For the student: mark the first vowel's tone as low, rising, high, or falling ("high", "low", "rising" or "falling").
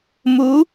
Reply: rising